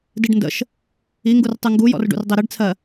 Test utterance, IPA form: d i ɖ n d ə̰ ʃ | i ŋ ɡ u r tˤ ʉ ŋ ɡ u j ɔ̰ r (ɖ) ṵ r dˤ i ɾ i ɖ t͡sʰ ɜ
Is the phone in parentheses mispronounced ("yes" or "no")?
no